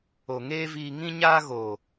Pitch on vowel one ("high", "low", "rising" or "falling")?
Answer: low